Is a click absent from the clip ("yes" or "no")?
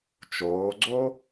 no